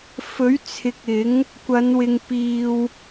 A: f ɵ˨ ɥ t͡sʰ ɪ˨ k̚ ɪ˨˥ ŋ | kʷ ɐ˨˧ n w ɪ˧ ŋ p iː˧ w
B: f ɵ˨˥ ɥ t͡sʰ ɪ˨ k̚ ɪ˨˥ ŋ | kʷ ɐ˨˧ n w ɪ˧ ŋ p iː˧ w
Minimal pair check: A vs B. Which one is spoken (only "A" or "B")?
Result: B